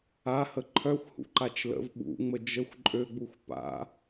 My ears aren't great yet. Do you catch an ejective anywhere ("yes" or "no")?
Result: yes